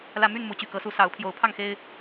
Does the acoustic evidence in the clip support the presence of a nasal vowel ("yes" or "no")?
no